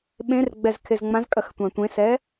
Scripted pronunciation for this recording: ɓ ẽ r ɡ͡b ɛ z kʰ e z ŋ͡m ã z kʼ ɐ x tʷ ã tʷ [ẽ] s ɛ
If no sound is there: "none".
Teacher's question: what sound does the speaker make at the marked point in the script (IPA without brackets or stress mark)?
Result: ẽ